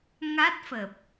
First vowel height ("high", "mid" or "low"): low